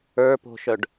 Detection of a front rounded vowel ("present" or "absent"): present